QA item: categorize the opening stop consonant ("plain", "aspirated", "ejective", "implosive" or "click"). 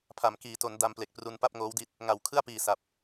aspirated